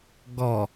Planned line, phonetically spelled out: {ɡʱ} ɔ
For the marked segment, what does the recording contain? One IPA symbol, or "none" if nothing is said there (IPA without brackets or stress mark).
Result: ɡ